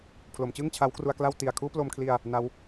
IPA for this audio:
pʰ l o˩˦ m t͡ɕ ɯ˥˩ ŋ t͡ɕʰ a˦˥ w k r u˧ a̯ k l a˥˩ w t i˨˩ a̯ kʰ uː˥˩ p l o˧ m kʰ l i˧ a̯ | n a˦˥ w

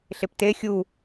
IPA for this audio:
ɬ e p t e xʲ u

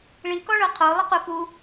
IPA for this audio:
ɭ i k ɔ ɭ ɤ qʰ o lˠ ɯ q u k u

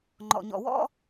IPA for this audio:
ŋ͡ǃ ɔ̰˨ ɲ ɔ̰˨ w ɔ̰˦

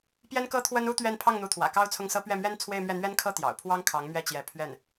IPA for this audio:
p j ɛ˥ n k ɤ˥ t̪ʰ w ə˥ n u˥ t̪ ɥ ɛ˥˧ n pʰ ɑ˥˩ ŋ n̪ u˧˥ t̪ʰ w ä̰˨˩ k ɑ˥ ʊ̯ t͡sʰ ʊ˥˩ ŋ s ɤ˥ p ɥ ɛ˥˩ m ɥ ɛ˥ n t͡sʰ w e˥˧ ɪ̯ m ɥ ɛ˥˩ n̪ ɥ ɛ˥ n kʰ ɤ˥ t̪ j ɑ̰˨˩ ʊ̯ pʰ w ɑ˥ ŋ kʰ ɑ˧˥ ŋ m ɥ ɛ˥˩ t͡ɕ j ɛ˧˥ pʰ ɥ ɛ˥˩ n

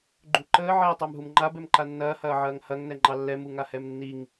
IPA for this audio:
ɡ͡ǃ u ǃ əː ʕ ɛː tˤ ɑ m ɦ u m ŋ͡ǃ a b ɛ m ǃ a nː ɐː h ɐː ʕ ɐː ŋ h ɐ ŋ n ɛ ŋ͡ǃ ɑ lː ɛ m u ŋ a h ɛ m nː i ŋ

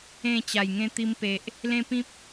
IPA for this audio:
ẽ˥˧ t͡ɕ a˨˩ j ŋ ẽ˧ t̪ i˧ m p e˨ ʔ | l ẽ˦ p ĩ˦ p̚

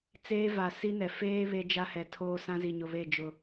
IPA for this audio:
t͡s eː˦ v a˨ s i˦ n ɛ˨ f eː˦ β e˦ d͡ʒ a˦ h ɛ˨ tʰ oː˦ s ã˦ z i˨ ɲ ʊ˨ β e˦˨ d͡ʒ ʊ˨

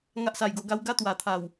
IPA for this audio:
ŋ a˦ ʔ s a˧ j ɡ o˧ ɡ a˦ w ɡ a˦ t̪ w a˨˩ t̪ʰ a˨˩ w

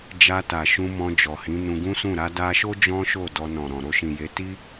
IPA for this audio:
d͡ʒ a˧ t a˨ ʃ ũ˧ m ɔ̃˧ d͡ʒ ɔ˨ h ĩ˨˦ n ũ˧ ɡ ũ˦ s ũ˦˨ ɾ a˧ d a˧ ʃ o˦ d͡ʒ ɔ̃˦ ʃ o˦˨ d ɔ˧ n ɔ̃˨ ɾ ɔ̃˨ ɾ o˧ ʃ ĩ˨ j e˨˦ t i˦

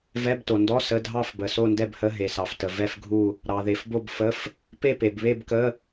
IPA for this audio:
v ɛ˧˥˧ b t o˨ n d ɔ˧˥˧ s ə˧˥˧ dʱ ɑ˥˧ f b ə˨ s o˥˧ n d ɛ˥˧ b h ə˧˥˧ ɦ e˨ s ɑ˨ f t ə˨ v ɛ˥˧ f ɡʱ u˥˧ | ɾ ɑ˨ ð e˨ f b o˥˧ b f ə˧˥˧ f | p e˥˧ p e˨ b β e˥˧ b k ə˧˥˧

